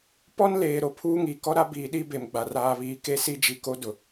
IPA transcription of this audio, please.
p ɔ˦ n l eː˨ ɾ o˨ pʰ uː˦ ŋ i˨ k ɔ˦ ɾ a˦ b iː˨ ɗ i˦ b e˨ m ɡ͡b a˨ r aː˨ β iː˨ k e˦ s i˦ d͡ʒ i˨ k o˦ d ʊ˨

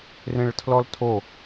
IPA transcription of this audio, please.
r ẽ ɭ tʰ l ɔ l tʰ o

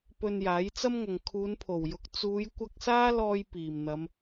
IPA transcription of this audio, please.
p ɵ˧ n j aː˨˥ j t͡s ɐ˥ m ŋ ɐ˨ ŋ kʰ uː˨˧ n pʰ o˨˩ w j ʊ˨˥ k̚ t͡s uː˨˧ j kʷ ɐ˧ k̚ s aː˥ l ɔː˧ j p iː˨˩ m n̪ ɐ˨˧ m

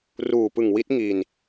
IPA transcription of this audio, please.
r uː˨˩ p ɯ˨˩ ŋ w i˦˥ t̚ ŋ i˨˩ n

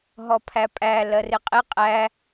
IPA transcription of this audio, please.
ɦ ɔ pʰ æ pʼ æ l ɜ r ɪ qʼ ɪ qʼ æ

